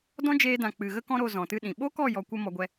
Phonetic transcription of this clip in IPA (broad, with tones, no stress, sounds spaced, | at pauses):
d ɔ̃˦ d͡ʒ eː˧ d ã˨ k͡p ɨ˨ ɣ ə˦ k ɔ̃˦ ɾ o˧ z ɔ̃˨ t ɨ˦ ɗ ĩ˨ ɓ o˦ k ɔ˦˨ j ɔ˧ kʷ ə˦ m ɔ˧ ɡʷ ɛ˧